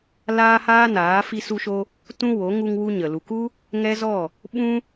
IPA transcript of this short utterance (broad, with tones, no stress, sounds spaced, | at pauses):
l aː˦ h aː˦ n aː˨˦ f i˧ s u˧ ʃ o˧ | t ũ˦ w o˨˦ ŋ u˧ ŋ w u˦ ɲ ə˨ l u˨ k u˦ | ŋ ɛ˦ z ɔ˦˨ | ɓ ũ˦